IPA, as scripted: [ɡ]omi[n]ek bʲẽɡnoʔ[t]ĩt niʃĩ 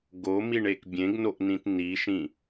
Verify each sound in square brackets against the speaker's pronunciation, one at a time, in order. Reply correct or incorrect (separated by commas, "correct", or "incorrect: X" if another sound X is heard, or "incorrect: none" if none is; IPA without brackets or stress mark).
correct, incorrect: ɳ, incorrect: n